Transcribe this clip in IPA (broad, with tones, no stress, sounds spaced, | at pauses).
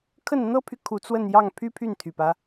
kʰ ə˥˩ n n̪ ɤ˥ pʰ y˨ kʰ u˧˥ t͡s w ə˥˧ n j ɑ˥˩ ŋ pʰ y˥ pʰ y˥˩ n t̪ʰ y˨˩ p ä˦